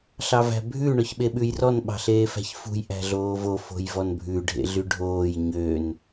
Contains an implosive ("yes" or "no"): yes